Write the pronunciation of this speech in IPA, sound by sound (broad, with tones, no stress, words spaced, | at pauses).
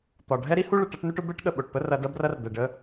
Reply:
t̪ɒ˨ ɖʱɛ˦ɾi˦hu˦ɭə˨ ʈɐ˦ʈnu˦ʈʊ˦ bɛ˦ʈɠə˨ ɓo˨ʈpə˦ rɐ˦ dɐ˦brɐ˦rd̪ɛ˨ɖə˦